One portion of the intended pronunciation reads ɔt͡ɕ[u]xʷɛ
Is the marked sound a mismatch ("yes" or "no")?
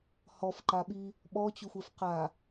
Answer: no